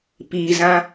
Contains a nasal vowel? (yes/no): yes